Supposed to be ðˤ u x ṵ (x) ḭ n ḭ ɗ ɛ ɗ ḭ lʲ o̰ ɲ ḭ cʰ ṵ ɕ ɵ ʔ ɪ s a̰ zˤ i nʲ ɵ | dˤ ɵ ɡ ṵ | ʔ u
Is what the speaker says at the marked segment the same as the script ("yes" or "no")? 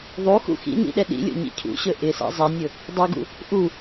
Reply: yes